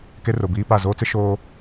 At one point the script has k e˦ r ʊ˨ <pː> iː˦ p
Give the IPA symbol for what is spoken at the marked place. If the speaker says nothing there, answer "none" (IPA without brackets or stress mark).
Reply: b